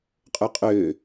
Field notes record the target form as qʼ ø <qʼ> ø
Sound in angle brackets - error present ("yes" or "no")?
no